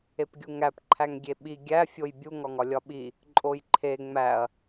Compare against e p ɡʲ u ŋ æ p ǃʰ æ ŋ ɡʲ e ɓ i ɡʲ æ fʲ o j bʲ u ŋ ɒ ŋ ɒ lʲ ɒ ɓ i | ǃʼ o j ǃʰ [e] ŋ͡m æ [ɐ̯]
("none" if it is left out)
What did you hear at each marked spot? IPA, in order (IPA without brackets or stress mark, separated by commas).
e, ɐ̯